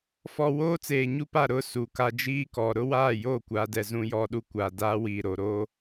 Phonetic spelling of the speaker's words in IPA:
f ɔ˨ w oː˦ t͡s eː˨ ɲ u˦ p a˦˨ ɾ ʊ˦ s u˨ k a˦ d͡ʒ iː˦ k ɔ˨ ɾ ʊ˦ w aː˦˨ j o˦˨ kʷ a˨ d ɛ˨ z ũ˦ j ɔ˦ ɗ u˦ kʷ a˨ d aː˦ w iː˨ ɾ o˨ ɾ oː˦

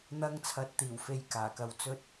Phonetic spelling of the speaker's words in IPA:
n̪ ɐ˧ ŋ t͡sʰ ɐ˨ t̚ t̪ iː˨˩ w f e˧ j k aː˨˩ k ɐ˧ w t͡s ɵ˥ t̚

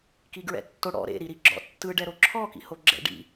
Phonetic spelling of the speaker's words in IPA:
k i ɡ ɹ ɛ̰ tː o ɽ ɔ̰ ɾ ḛ ɾ i ɾ i ɡ͡ǁ ɔ̰ tː ɯ ɖ ɛ ɾ o ǁʰ ɔ k ḭ h o ɡ͡ǁ ɛ̰ ɖ ḭ

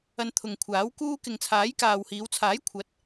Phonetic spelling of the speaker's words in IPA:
ɐ˧ n t̪ʰ ʊ˨ ŋ kʷʰ aː˨˥ w k uː˥ k ɪ˨ ŋ t͡sʰ aː˨˥ j k aː˨ w h iː˨˧ w t͡sʰ aː˨˥ j kʷʰ ɐ˨˥ t̚

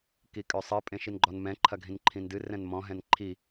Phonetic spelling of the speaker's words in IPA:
k i kʼ ø sˤ ɨ pʼ ẽ ʃ i n ɡ͡ǃ ɔ n m ɛ̃ ǃʰ ɐ ɡʱ ĩ n ǃʰ ĩ n d ɨ r ɛ̃ n m ɔ̃ ɦ ɛ̃ n ǃʰ i

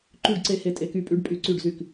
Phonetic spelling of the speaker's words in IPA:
ǃ y˥˩ ɖ ǀ e˧˥ h e˧˥ tʼ e˧ k y˧˥ pʼ y˧˥ ɖ pʼ y˧˥ ǀ y˥˩ ɖ z y˥˩ k

